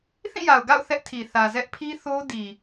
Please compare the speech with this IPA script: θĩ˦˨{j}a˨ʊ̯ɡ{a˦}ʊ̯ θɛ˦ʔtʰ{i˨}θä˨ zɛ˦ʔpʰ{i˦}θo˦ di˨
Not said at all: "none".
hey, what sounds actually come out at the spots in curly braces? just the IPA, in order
j, a̰˦˨, i˨, i˦

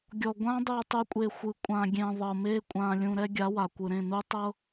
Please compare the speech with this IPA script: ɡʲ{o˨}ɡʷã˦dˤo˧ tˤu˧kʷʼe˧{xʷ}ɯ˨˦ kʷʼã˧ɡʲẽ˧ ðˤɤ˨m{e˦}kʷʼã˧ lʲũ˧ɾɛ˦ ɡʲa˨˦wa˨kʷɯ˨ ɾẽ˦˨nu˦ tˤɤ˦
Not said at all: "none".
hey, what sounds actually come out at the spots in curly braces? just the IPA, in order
ɔ˨, xʷ, e˦

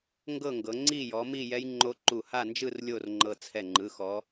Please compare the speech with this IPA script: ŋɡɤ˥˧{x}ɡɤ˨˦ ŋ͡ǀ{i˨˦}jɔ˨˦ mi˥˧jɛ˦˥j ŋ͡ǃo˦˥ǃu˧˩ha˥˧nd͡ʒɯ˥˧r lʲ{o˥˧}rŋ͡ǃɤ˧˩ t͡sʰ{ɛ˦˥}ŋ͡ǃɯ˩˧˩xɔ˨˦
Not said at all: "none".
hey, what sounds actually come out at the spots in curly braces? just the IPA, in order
ŋ, i˥˧, o˥˧, ɛ˧˩

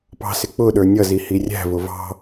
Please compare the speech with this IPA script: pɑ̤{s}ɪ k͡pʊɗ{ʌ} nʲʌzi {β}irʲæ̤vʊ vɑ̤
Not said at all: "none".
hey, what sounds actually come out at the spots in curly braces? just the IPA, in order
s, ə˞, h

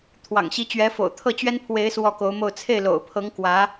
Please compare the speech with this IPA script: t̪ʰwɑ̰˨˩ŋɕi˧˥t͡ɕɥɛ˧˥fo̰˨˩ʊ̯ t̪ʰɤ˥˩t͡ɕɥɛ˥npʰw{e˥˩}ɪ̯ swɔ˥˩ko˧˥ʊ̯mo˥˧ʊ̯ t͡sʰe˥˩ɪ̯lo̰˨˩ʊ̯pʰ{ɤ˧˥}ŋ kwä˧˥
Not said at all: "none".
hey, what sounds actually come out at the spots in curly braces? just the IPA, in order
e˧˥, ɤ˧˥

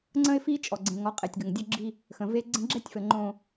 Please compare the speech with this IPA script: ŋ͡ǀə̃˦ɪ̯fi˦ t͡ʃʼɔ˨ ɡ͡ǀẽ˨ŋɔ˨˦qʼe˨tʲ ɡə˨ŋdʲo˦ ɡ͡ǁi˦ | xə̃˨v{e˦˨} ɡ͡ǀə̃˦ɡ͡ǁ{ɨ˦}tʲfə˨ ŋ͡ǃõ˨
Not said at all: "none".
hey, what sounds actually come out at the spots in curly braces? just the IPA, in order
e˦, ɛ˦

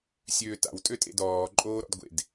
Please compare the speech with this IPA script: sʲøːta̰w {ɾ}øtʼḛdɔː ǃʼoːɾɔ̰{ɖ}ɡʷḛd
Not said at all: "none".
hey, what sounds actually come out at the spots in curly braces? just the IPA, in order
tʼ, d

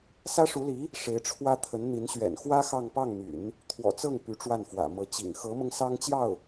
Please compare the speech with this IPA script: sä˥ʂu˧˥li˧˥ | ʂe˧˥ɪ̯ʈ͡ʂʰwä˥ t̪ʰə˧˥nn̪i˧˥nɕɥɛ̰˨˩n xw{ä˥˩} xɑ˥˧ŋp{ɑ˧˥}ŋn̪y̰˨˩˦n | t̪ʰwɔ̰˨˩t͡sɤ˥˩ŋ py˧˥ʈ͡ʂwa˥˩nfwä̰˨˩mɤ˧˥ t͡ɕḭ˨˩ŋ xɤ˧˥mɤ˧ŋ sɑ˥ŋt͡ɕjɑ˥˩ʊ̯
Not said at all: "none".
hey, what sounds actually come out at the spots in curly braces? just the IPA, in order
ä˥, ɑ˥˩

